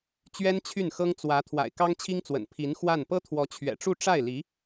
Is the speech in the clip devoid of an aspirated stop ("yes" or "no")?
no